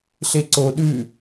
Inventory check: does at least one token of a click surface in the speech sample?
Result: yes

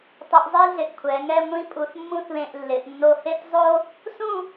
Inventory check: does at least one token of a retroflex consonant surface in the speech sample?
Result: no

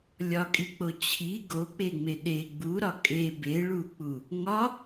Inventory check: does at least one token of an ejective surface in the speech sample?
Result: yes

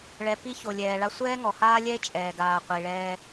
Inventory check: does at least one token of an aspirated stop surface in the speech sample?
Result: no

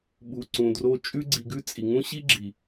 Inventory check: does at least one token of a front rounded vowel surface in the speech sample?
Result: no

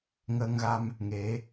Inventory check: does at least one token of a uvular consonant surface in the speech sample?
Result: no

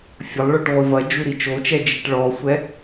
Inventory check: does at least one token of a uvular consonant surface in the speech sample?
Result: yes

